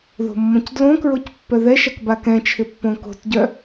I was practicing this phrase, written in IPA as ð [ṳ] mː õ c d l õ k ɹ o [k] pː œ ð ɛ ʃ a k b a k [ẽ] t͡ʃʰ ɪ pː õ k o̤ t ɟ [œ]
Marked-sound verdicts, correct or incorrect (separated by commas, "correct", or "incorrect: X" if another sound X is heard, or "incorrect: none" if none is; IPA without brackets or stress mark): incorrect: o̤, incorrect: c, incorrect: ɛ̃, correct